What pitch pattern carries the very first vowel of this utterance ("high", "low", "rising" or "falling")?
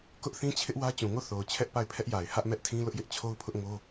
high